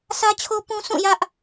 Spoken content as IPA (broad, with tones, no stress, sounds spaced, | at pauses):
s ä˦ t͡ɕʰ o˦ p ũ˦ sʰ ũ˦˨ j ä˦ ʔ